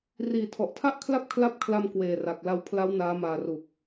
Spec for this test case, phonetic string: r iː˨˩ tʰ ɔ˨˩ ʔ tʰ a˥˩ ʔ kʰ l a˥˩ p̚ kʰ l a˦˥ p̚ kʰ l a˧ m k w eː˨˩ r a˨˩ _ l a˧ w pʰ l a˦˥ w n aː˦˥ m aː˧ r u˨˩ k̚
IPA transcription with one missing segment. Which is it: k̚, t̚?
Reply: k̚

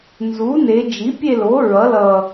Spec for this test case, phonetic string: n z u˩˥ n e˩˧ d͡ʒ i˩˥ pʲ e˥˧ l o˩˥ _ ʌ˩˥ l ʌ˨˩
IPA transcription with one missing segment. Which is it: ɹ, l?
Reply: ɹ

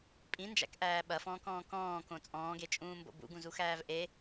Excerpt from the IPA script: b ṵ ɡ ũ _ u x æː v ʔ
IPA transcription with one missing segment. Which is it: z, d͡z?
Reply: z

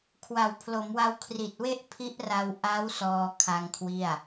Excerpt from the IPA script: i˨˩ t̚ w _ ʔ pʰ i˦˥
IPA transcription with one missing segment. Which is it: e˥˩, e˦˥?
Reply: e˥˩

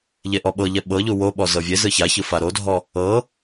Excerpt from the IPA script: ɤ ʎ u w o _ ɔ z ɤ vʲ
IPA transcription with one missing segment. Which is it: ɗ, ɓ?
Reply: ɓ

